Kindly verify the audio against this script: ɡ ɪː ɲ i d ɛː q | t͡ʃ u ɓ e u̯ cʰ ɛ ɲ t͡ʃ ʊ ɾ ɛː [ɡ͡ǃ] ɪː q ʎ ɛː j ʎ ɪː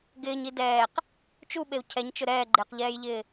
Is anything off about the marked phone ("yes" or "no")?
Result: no